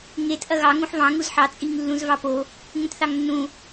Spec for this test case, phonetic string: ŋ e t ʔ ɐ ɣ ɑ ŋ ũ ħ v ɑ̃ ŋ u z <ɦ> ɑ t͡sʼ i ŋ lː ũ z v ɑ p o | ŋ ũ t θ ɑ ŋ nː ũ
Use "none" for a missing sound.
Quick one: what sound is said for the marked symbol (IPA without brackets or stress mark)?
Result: ħ